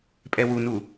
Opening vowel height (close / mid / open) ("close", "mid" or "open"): mid